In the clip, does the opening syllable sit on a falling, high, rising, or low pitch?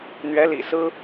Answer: rising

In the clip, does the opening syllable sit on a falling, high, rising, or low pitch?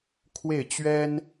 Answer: falling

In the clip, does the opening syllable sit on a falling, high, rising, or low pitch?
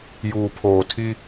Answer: low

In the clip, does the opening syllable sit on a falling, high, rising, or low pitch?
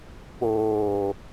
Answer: low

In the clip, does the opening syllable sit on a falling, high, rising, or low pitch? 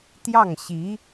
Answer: falling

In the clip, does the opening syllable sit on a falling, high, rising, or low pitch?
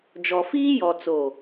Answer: low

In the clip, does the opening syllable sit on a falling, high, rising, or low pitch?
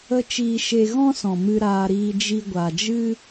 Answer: high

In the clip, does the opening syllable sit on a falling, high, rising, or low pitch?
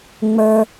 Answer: high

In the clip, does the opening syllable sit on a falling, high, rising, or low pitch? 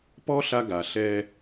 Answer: high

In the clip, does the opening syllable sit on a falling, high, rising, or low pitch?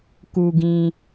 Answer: low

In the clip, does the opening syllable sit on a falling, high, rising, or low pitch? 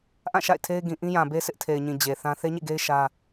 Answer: falling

